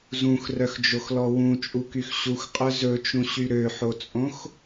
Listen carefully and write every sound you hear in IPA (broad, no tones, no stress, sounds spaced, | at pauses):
z ũ x r œ x d͡ʒ o x l ɔ w ũ t͡ʃʼ u k y x ɕ u x qʼ œ z ɵ t͡ʃ ũ ɕ y ɾ ø ħ o t͡sʼ õ x